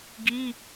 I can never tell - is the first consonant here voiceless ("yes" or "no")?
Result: no